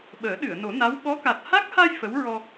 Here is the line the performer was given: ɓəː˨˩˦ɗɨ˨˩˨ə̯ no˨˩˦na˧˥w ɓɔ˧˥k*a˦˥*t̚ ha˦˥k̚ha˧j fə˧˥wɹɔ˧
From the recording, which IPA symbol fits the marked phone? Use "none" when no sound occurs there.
a˨˩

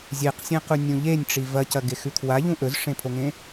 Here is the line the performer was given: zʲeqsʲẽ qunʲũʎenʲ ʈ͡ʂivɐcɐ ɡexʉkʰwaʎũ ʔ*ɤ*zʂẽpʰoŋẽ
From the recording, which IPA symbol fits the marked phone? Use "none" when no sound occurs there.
ɵ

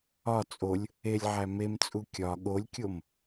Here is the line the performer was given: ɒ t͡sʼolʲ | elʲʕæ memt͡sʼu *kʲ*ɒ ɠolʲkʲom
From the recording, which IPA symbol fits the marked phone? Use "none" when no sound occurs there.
kʲ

